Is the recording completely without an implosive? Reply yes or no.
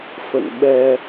no